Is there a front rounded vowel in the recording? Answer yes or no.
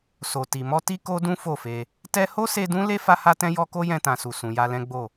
no